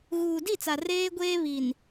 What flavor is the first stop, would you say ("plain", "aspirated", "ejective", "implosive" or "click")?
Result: plain